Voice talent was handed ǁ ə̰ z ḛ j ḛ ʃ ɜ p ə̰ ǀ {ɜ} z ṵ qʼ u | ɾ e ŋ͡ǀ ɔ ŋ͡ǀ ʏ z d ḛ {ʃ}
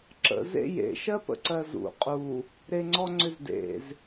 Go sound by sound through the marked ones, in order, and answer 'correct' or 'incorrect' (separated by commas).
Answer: correct, incorrect